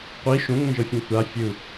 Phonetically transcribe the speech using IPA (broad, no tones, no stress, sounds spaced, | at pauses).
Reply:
qʷ i ʃ õ ŋ ɛ̃ ʒ ɤ fʲ ẽ tʷ a fʲ ɯ